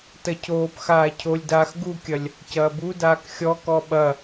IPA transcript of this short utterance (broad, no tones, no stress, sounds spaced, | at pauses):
t ɐ cʰ oː p x aː cʰ o lʲ d aː x ɡ u kʲ ɐ lʲ | c ɐː b u d aː k xʲ ɔ k ɔ ɓ ɐ